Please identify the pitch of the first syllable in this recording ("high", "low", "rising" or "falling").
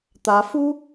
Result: rising